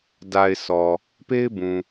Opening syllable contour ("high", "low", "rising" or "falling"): low